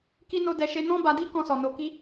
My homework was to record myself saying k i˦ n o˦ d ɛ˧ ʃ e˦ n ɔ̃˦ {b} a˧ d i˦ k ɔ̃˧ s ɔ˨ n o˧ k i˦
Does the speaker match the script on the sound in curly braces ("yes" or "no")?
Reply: yes